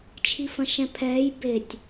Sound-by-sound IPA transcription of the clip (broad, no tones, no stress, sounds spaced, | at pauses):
t͡ʃʰ i f ɐ̃ ʃ ɛ̃ pʰ ɛː j b e tʲ